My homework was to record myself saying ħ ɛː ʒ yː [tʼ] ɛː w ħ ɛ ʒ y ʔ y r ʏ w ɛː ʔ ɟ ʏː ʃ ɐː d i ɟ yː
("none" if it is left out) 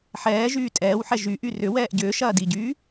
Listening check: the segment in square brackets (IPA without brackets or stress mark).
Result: tʼ